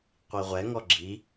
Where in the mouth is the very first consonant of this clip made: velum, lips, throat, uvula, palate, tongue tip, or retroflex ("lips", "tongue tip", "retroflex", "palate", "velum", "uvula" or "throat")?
uvula